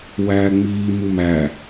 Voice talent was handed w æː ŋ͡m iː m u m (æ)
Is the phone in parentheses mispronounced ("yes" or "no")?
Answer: no